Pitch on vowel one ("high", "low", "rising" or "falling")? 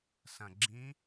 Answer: low